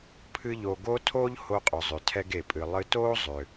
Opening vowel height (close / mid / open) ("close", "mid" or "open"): close